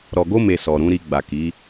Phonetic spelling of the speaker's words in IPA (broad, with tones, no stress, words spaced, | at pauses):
ɾɔ˨ɡo˧me˨ sɔ˨ɾũ˨˦ɾi˧ ɡ͡ba˨ki˨˦